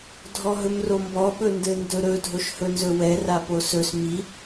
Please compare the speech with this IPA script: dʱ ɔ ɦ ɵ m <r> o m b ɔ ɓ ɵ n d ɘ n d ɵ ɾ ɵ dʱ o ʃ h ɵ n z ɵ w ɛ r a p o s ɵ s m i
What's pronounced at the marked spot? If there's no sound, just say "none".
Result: r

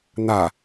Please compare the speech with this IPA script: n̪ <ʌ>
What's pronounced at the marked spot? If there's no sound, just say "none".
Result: a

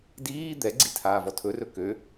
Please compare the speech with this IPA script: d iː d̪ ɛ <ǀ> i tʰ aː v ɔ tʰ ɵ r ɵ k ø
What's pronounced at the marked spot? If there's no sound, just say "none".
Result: ɡ͡ǀ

